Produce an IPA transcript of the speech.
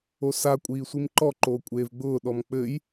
o s a kʷʼ iː sʷ i m ǃ ɔ ǃ oː kʷʼ eː v ɡ͡b ʊː ɗ ɔ m k͡p ɘ j

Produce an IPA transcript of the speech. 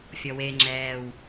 fʲ ɔ w e ŋ͡ǁ ɛː w

